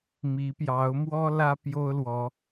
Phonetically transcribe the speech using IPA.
mi˨˦pjɑ˨˦ʊ̯mwɔ˦ lä˦ pjo˦ʊ̯lwɔ˨˦

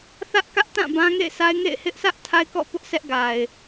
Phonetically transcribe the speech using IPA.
θä˦ʔkä˦ʔtã˦˨ bã˦ŋḛ˦˨ɪ̯ sa˦ɪ̯ ŋḛ˦˨ɪ̯ hɪ˦ʔsä˦ʔ tʰa˦ɪ̯kɔ̰˦˨pʊ˦ʔ sʰɛ˦ʔ ɡa˨ɪ̯

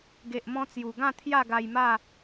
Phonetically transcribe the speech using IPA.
ɡe˨ʔmɔ̃˧t͡sju˨˩ɡã˥˧ t̪ʰja˥˧ɡa˧jma˥˧

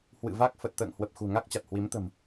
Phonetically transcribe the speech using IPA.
hwɨ̰˧˨ va˦˥k̚ fə˨˩t̚t̪ə̰ː˧˨ŋhwə˨˩p̚ xṳ˨˩ŋa˦˥k̚t͡ɕa˨˩t̚ hwi˨˦mt̪ə̤˨˩m

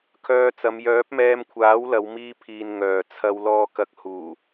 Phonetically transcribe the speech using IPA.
kʰœː˧t͡sɐ˨˧m jœː˨˥p̚mɛː˧mkʷʰaː˨˥w lɐ˨˧w miː˧pʰiː˨n ŋœː˨t͡sʰɐ˧w lɔː˨kɐ˨k̚ huː˨˩

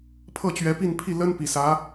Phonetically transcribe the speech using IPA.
pʰɤ˥˩t͡ɕɥɛ˧˥ pi˥˧npʰi˥˩ lə˥npi˨˩sä˧˥

